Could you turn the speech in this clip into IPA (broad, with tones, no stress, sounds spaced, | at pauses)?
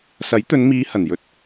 s ɐ˨˥ j t̪ ɵ˨˧ n m iː˨˧ h ɐ˨˩ n j ɵ˧ t̚